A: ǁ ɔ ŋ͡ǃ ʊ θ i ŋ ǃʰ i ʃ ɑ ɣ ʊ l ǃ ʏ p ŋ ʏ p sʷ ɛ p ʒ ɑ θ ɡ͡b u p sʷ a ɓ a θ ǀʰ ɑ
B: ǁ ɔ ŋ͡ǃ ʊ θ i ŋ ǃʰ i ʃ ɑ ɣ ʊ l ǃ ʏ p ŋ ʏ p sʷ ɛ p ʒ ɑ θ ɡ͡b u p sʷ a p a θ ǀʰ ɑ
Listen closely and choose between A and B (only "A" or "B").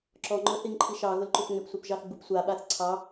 A